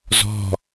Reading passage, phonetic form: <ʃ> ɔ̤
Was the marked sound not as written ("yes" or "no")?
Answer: yes